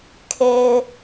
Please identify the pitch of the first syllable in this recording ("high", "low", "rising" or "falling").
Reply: high